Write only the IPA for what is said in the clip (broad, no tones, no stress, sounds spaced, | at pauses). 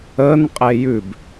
ə n qʼ e j ʉ b